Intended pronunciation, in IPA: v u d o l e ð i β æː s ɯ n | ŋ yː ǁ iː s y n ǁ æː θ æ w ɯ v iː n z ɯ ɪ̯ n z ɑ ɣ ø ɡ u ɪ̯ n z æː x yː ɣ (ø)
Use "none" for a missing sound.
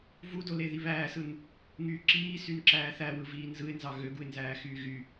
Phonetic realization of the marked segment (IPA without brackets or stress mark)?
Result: y